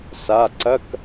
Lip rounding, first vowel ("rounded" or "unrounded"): unrounded